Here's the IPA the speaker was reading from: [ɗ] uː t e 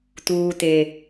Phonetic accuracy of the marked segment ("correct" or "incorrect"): incorrect